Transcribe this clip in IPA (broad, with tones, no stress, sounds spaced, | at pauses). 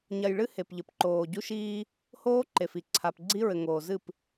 ɲ ɐ˨ j ɭ ɨ˦ h e˨ p ʎ ɘ˨ p ǃ oː˨ ɟ u˦ ʃ iː˦ | h oː˦ ǃ e˨ f i˨ ǀʰ a˨ p ɡ͡ǀ i˦ ɹ ɘ˨ ŋ oː˨ z ɨ˦˨ p